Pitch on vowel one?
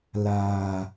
low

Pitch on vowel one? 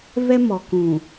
high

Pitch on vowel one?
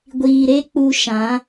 low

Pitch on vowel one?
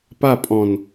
falling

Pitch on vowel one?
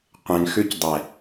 low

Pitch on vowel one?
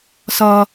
high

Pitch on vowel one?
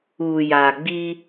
low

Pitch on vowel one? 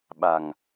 low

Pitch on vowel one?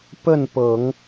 falling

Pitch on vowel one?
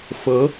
rising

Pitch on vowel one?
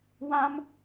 high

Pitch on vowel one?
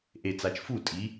low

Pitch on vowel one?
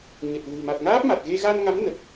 low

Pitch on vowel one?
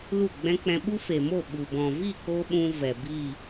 falling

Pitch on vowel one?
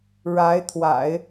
rising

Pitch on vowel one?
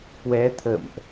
rising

